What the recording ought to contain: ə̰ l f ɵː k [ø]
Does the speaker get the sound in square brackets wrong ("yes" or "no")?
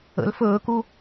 yes